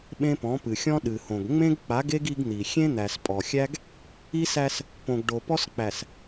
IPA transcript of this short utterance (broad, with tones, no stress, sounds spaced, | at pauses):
ɓ ẽ˦ p ɔ̃˨˦ p ɨ˨ xʲ ɔ̃˦ ɗ ɨ˨ h õ˨ ɡ ŋ͡m ẽ˦ ɡ k͡p a˨˦ ɡ e˦ ɡ i˦ ɡ n̪ i˨ xʲ ẽ˦ n̪ æ˨ s pʼ ɔ˨ xʲ æ˦ ɡ | i˦ s æ˦ s | p õ˨ ɡ ɖ o˨ p ɔ˦ s k͡p æ˨ s